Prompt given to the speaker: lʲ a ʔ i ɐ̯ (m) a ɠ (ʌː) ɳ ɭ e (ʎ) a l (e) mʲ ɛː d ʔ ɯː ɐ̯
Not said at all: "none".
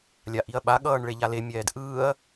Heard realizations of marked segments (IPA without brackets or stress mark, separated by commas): ɓ, ʌː, ʎ, e